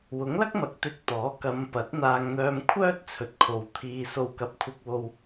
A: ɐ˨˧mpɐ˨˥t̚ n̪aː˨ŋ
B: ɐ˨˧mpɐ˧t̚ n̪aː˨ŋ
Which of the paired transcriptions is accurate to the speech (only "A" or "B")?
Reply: A